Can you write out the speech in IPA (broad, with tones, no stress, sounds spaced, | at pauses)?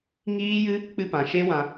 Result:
ŋ iː˦ j ɨ˦ | k͡p ɨ˧ p ã˨ ʃ e˦ w ã˧